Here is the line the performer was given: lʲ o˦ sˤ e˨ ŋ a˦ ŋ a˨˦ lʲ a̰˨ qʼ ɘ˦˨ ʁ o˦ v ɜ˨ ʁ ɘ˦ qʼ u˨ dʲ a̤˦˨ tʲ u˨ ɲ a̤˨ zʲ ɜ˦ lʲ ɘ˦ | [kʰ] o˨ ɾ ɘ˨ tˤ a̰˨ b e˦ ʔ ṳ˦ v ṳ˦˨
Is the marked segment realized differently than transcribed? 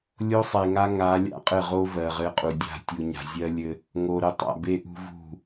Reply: yes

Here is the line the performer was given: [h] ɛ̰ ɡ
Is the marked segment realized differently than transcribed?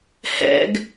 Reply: no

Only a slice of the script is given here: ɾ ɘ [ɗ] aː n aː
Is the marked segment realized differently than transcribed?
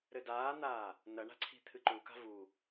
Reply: yes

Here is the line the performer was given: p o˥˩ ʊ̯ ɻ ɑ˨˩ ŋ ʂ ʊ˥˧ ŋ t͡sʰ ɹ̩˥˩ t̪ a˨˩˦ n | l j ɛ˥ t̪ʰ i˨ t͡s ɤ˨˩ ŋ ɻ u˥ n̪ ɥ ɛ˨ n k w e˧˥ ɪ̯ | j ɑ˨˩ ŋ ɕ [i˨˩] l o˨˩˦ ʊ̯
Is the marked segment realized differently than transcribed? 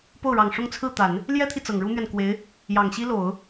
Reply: yes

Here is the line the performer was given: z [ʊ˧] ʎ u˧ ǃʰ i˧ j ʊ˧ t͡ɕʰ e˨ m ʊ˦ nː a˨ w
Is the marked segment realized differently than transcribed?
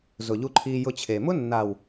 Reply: yes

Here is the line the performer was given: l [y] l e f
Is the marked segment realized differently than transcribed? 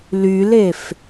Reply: no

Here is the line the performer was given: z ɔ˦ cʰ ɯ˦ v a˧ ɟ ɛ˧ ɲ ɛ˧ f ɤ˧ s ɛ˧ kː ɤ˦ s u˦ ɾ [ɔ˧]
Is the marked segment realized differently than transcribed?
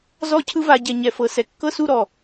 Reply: yes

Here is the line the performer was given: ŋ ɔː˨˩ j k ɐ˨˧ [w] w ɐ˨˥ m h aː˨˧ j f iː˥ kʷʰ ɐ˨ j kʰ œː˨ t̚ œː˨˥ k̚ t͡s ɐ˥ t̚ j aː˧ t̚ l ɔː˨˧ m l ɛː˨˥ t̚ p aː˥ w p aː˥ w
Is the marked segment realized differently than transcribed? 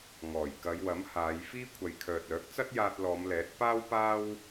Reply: yes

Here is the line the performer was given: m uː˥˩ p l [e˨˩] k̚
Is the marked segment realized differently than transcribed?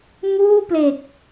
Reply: no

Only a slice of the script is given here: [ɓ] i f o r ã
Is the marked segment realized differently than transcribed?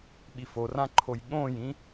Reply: no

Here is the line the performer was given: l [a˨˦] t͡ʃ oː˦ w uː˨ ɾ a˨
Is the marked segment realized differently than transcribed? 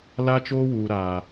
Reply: yes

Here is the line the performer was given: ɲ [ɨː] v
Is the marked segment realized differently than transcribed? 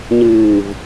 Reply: no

